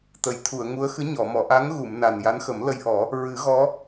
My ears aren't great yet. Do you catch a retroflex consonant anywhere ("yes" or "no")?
no